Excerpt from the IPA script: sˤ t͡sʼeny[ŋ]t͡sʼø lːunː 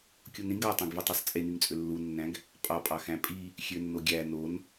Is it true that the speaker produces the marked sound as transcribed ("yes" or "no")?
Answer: yes